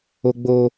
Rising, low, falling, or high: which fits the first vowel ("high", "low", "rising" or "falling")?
low